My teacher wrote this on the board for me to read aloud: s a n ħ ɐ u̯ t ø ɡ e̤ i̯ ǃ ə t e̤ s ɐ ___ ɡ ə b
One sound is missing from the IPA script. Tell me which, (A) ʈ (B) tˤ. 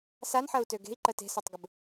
B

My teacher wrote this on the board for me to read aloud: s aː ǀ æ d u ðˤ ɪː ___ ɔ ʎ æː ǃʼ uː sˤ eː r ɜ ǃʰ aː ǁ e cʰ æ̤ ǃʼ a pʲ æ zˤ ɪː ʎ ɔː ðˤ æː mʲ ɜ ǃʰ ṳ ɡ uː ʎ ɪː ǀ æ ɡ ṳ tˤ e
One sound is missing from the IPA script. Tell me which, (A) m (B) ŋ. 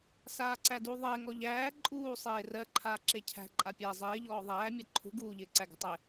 B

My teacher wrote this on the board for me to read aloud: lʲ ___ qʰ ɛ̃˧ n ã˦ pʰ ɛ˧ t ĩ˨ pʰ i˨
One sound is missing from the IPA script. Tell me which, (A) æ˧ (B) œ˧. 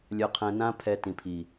B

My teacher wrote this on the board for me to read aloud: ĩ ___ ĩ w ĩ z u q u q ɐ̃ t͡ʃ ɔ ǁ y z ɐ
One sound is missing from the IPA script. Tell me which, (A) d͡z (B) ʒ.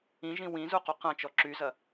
B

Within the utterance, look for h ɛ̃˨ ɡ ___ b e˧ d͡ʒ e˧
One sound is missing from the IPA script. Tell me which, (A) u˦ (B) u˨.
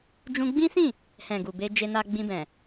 B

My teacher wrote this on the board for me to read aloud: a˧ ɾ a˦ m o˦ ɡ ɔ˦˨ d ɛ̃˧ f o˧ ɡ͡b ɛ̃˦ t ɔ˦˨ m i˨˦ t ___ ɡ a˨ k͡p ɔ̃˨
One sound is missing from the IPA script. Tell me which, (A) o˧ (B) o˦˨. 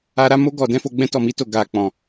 B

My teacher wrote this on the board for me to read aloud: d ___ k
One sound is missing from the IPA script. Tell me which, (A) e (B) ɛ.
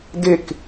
A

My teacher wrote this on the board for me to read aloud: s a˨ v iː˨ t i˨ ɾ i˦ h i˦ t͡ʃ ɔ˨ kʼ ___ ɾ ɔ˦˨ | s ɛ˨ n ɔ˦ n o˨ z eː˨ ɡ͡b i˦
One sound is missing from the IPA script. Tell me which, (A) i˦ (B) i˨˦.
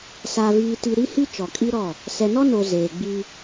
A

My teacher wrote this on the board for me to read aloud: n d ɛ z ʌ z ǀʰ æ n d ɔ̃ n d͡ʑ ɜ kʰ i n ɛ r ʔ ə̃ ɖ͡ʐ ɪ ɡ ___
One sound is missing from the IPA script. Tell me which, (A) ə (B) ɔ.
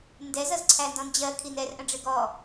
B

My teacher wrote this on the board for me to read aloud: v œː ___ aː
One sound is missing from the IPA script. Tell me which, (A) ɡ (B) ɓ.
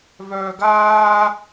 A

